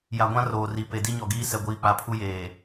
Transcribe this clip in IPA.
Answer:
j a˨ ɡʷ ã˦ r oː˨ r i˨ p e˨ d i˦ ɲ ɔ˨ ɡ iː˦ s ɛ˨ ɡʷ iː˨ k͡p a˨ pʰ u˦ j eː˨

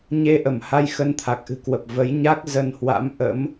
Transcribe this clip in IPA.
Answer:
ɲ e˧ ʔ ə˧˩ m h a˧ j x ə˧ n t̪ʰ a˨˩ k̚ ʔ ɨ̤˨˩ k w ə˨˩ p̚ v ə˨˦ j ɲ a˦˥ k̚ z ə˧ n h w a̰˧˥ m ʔ ə̰˧˥ m

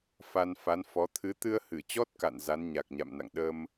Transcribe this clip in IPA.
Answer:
f a˧ n f a˨˦ n f ɔ˨˦ t̪ʰ ɨ˨˦ t̪ ɨ˧ ə̯ h ɨ˧˩ t͡ɕ ɔ˦˥ t̚ k a̰˧˨ n z a˨˦ n ɲ a˨˩ k̚ ɲ a̰˧˨ m n a̰˧˨ ŋ ɗ ə˧ m

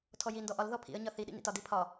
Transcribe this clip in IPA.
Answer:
tʰ ɔ j i n d ɔ ʔ ɒ l ð ɔ pʰ ḭ ə̯ ɲ ɒ θ i ɗ ḭ n ḭ t ɒ d i pʰ ɒ

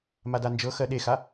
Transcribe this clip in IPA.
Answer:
m a d a n d͡ʒ ɤ x ɜ ɗ e x a

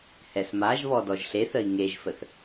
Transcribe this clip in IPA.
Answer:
h ɛ s m a ʒ β ɔ d ɔ ʒ ɬ e θ ə i̯ ŋ e ʒ f ə θ

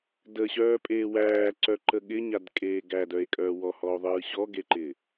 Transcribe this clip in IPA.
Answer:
d ə ɕ œː pʼ eː w æː ǀ œ ǃ ə ɠ ɪ ɲ a d kʼ eː ɡ æ d œ e̯ kʼ œː w ɔ h ɔ o̯ ðˤ ɯː ɕ ɔ ɡ e ǃ ɪː

